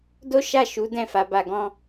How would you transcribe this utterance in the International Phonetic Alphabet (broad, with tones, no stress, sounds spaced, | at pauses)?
d o˦ ʃ a˦˨ ʃ u˨˦ d ɛ̃˦˨ f a˨˦ b a˧ ɡ ɔ̃˦